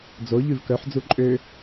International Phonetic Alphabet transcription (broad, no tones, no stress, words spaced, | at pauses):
d͡zo ʎʉvkœħ d͡zuǃʼø